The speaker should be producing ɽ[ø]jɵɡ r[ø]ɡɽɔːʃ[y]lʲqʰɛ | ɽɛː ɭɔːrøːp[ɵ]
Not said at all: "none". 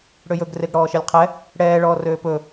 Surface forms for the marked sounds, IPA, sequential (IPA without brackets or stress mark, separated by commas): ø, e, e, ɵ